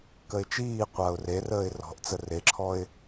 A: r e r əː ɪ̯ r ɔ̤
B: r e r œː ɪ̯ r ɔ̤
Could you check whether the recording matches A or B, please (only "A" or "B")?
A